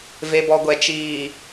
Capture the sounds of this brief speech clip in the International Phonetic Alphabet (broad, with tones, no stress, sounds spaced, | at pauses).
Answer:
v e˨ b ɔ˨ ɡʷ ɛ˨ t͡ʃ iː˨